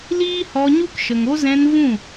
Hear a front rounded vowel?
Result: no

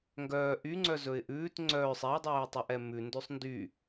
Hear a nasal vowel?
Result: no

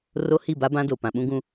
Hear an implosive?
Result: yes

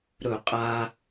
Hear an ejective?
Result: yes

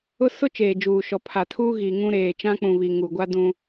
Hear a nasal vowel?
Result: yes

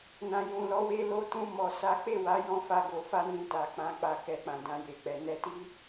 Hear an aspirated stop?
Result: no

